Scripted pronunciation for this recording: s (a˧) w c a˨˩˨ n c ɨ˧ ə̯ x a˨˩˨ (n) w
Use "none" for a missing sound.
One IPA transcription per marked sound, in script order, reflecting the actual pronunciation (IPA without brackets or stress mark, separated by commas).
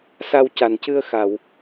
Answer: a˧, none